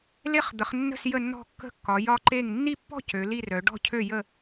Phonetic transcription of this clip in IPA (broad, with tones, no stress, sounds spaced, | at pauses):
l e˥˧ χ d̪ ə˨˦ χ nː ə̤˥˧ s j ə˥˧ nː ɔ̤˥˧ kː ə̤˥˧ kː ɒ˨˦ j ɒ˥˧ ǃ e˥˧ ŋ nː i˥˧ pː ɔ̤˥˧ c ø˨˦ l i˥˧ r œ˨˦ ɖ ɔ̤˥˧ cʰ ø˥˧ j ə˥˧